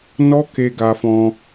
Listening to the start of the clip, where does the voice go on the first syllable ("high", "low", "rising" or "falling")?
high